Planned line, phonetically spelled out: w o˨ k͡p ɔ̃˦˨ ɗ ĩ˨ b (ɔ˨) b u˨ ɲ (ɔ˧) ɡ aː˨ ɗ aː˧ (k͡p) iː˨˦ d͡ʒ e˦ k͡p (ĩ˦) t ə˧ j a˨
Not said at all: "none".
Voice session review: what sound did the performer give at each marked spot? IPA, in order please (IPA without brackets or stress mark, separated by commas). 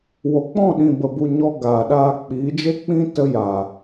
ə˨, ɔ˧, k͡p, ĩ˦